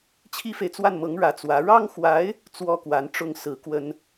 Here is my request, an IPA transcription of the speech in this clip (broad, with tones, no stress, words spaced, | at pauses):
t͡ɕʰi˥fe˨ɪ̯t͡swa˥˩nmɤ˧˥ŋ ɻä˧˥t͡swä˧˥ ɻɑ˥ŋxwa˧˥ɪ̯ | t͡swɔ˥kwa˧˥nʈ͡ʂʊ˥ŋ sɹ̩˧˥ kwə˥n